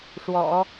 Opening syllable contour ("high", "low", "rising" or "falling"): low